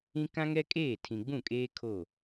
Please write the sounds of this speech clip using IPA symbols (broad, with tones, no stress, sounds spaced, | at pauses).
ĩ˦ k ã˦ ŋ ɛ˦ kʼ eː˦˨ tʰ ĩ˨ ɡ͡b ũ˦˨ kʼ eː˦ kʰ o˦˨